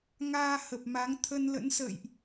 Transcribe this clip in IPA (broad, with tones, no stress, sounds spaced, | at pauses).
ŋ aː˧ h ə˨˩ p̚ m a˨˦ ŋ t̪ʰ ə˧ n l ə̰˧˥ n s ə̰ː˧˨ j ʔ